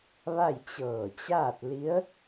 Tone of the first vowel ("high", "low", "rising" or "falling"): falling